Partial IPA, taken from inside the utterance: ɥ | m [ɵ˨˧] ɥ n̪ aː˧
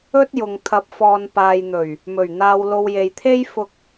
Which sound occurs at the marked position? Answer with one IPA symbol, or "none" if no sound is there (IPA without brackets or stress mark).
ɵ˨˩